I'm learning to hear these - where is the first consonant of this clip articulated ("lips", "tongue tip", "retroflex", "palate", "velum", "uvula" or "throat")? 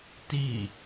tongue tip